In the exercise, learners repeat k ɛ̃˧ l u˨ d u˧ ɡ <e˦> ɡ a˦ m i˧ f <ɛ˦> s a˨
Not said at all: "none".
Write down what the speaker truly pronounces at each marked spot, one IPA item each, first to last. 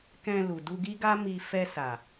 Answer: i˦, ɛ˧

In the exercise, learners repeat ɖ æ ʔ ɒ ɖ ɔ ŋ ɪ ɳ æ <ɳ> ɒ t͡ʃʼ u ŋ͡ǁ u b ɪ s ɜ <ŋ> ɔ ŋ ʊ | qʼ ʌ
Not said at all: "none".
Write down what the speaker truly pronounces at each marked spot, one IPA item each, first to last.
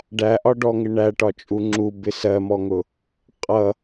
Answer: ʈ, m

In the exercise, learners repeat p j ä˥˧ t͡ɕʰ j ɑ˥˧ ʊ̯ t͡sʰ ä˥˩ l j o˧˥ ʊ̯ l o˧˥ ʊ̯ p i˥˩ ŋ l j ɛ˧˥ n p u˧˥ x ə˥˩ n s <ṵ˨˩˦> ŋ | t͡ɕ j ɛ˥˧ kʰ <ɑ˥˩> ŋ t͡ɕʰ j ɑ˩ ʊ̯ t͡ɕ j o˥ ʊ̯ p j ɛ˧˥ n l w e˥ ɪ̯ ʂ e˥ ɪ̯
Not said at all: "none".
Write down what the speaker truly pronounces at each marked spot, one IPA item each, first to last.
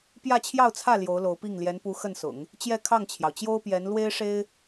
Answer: ʊ̰˨˩˦, ɑ˥˩

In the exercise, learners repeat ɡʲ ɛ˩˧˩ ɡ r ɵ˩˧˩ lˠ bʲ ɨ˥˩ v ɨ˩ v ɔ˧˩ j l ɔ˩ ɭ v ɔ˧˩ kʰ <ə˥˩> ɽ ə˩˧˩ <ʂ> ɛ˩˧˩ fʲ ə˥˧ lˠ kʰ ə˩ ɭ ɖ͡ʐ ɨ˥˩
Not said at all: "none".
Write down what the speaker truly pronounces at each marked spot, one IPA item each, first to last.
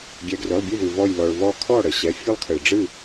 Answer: ɔ˥˩, ɕ

